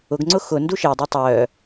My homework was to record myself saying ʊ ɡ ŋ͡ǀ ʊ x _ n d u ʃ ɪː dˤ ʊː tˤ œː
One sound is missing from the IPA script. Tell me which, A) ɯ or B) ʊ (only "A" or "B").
B